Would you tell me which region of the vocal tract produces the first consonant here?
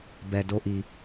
lips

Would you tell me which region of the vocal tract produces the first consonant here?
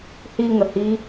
throat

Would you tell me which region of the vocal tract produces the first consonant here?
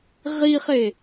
uvula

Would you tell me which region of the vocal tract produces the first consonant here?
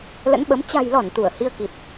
tongue tip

